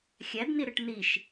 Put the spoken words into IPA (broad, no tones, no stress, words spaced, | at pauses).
xʲædni ɾɯʈniʃ